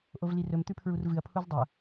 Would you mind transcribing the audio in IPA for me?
ʔ o v l i r ɵ m t̪ ʉ pʰ ɹ u r v ɨ ɐ̯ pʰ u z dˤ ɐ

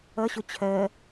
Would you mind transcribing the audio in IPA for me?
ʌ ɕ ʊ t͡ɕʰ ɜ

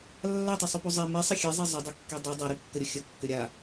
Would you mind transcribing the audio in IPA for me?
lː a tˤ ɛ sˤ u p u zˤ ɛ m i sˤ ə xʲ e zˤ e zˤ ə dˤ e kː e dˤ i dˤ a ɾ i kː ə ɾʲ ə xʲ ə kː ʏ ɾʲ a

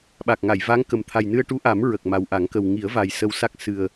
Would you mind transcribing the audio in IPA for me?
ɓ a˨˩ k̚ ŋ a˨˩˨ j v a˧˥ ŋ k ə˨˩ m t̪ʰ a˨˩ j n ɨ˧ ə̯ ʈ u˧˥ ʔ a˨˩˦ m ɹ ə˨˩ k̚ m a˨˩ w ʔ a˨˩˦ ŋ k ə˨˩ w ŋ i˨˩˦ ə̯ v a˨˩ j s ə˧ w s a˦˥ k̚ s ɨ˨˩ ə̯

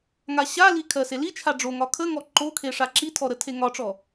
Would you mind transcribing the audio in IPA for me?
ŋ a ɕ a l i kʰ ɜ s e l i t͡ʃʰ a ɖ͡ʐ o ŋ ɒ kʰ ə ŋ ɔ ǃ o kʰ e ʂ a ǁ i tʰ ɔ ɾ ə tʰ e ŋ ɒ ʈ͡ʂ ɔ

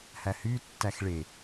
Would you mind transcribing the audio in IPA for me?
h æ h y tː æ x ɭ e

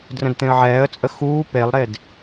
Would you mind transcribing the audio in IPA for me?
d r ə̃ d t̪ ẽ ə̯ ʕ ɛː ə̯ t͡sʼ ə x uː p e lˠ ɾ e d

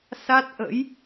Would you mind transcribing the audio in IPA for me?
s a˦˥ t̚ ʔ ə̰˧˥ j

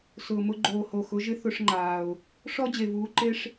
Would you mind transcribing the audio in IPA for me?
s ʊː˨ m ʊ˧ ɡ͡ǃ oː˨ h o˨ x ʊ˨˦ ʒ ɪ˦ θ ʊ˧ ʂ ŋ͡ǃ aː˨ ʊ̯ | ʂ ɔ˦ d͡ʑ e˨ v uː˨˦ ǃ e˦ ʂ

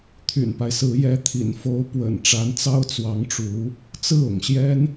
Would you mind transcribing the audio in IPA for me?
t̪ʰ y̰˨˩ n p a˦ ɪ̯ s ɹ̩˧˥ j ɛ˧˥ t̪ʰ ḭ˨˩ n f o˧˥ ʊ̯ p w ə̰˨˩ n ʈ͡ʂ a˧˥ n t͡s ɑ˥ ʊ̯ t͡s w ɑ˧˥ ŋ ʈ͡ʂ u˧˥ | t͡s ɹ̩˥˩ ʊ̰˨˩ ŋ ɕ j ɛ˥ n

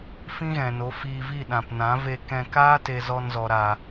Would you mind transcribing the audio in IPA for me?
f ĩ˦ ɣ ɛ̃˨ n o˨˦ f iː˧ v i˦˨ ɗ ã˨ p n ã˨˦ v e˧ k ɛ̃˧ k aː˦ t e˧ z ɔ˧ n z ɔ˨ ɾ a˨

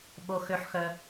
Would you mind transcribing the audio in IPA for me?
ɓ o˦ x ø˦ ħ x œ˦

